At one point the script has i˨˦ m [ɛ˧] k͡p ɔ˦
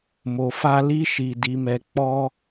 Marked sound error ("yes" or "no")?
no